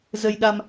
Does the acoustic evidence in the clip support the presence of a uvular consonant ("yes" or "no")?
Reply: no